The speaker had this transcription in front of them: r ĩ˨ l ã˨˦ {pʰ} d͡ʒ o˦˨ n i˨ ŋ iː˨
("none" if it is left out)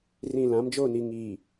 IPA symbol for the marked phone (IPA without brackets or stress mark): m